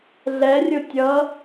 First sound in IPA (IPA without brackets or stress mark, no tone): ɮ